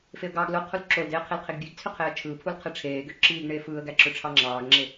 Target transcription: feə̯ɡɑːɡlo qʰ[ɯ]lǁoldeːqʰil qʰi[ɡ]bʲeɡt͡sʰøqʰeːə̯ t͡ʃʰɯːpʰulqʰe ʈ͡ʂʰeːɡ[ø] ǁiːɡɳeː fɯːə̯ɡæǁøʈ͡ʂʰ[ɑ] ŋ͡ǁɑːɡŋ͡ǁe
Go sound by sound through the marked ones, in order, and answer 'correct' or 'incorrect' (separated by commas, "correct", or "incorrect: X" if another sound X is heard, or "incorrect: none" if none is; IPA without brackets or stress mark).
incorrect: u, correct, correct, correct